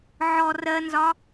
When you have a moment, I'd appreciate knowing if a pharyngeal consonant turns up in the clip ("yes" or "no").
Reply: yes